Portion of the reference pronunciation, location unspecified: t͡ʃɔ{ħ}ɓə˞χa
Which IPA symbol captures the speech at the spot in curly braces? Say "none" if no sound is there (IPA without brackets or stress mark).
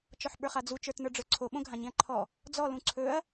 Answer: ħ